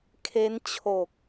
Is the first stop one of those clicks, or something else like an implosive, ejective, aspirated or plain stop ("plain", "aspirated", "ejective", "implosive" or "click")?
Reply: aspirated